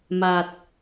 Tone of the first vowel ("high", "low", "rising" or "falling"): low